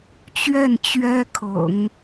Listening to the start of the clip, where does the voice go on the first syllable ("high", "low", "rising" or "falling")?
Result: falling